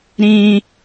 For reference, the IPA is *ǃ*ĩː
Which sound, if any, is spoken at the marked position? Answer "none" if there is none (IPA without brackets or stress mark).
ɾ